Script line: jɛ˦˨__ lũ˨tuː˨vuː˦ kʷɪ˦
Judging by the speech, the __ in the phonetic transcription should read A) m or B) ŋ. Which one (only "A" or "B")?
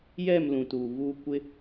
A